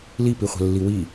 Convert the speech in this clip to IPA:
l i p i χʷ ɛ̤ lː i w i

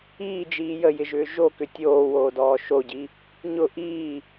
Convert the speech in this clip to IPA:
iː d͡ʒ iː j ə j ɪ ʒ ʏː ʒ o k ʏ tʲ oː w oː d ɔː ʃ o ɟ i | ɲ ʊ ʔ iː

